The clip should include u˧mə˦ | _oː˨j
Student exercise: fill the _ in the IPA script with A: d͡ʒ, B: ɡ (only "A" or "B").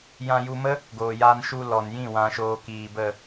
B